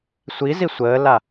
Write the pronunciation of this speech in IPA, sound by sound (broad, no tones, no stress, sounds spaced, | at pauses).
sʷ i z i sʷ əː l a